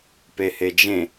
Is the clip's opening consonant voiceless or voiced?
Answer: voiceless